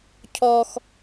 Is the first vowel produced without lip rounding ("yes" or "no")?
no